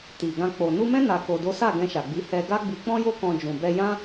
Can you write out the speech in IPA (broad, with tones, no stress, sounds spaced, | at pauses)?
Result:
t i˨ ɡ ã˧ k͡p o˨ n u˧ m ɛ̃˦ n a˧ k o˧ d o˦ s a˦˨ ɡ ɛ̃˧ ʃ a˨ ɡ͡b i˨˦ h ɛ˧ ɡ a˦ ɡ͡b i˧ k͡p ɔ̃˦ j o˦ k ɔ̃˧ d͡ʒ ũ˨ b ɛ˧ j ã˦